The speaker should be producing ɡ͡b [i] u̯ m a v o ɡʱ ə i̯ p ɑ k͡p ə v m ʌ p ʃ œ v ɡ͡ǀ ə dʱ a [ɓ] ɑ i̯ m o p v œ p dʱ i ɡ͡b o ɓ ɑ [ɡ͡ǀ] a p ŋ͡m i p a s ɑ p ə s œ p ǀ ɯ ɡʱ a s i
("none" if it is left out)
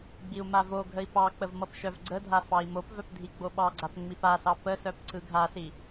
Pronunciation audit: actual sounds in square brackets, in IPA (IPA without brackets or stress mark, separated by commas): i, f, ɡ͡ǀ